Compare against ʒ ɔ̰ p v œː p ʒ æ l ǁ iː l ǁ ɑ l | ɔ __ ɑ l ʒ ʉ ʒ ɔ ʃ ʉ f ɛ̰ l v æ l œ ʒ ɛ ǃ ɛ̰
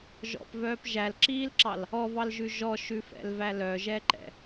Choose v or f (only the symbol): v